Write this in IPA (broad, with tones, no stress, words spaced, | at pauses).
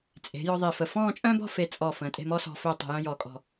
t͡sʼe̤˩˧ jɔ˧ðˤe˧˩fə˧˩ fɔ̃ː˥˧t͡ʃʼœ̃˥bɔ̤˥˧ fe˧t͡sʼɔ˧˩ fə̃ː˩˧tʼe̤˥˧mɔ˥sɔ̤˧ fɵː˥˧tˤe̤˧jœ̃˥ jɔː˧kʼɔ̤˥˧